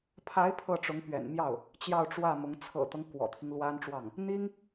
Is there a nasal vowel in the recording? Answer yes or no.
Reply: no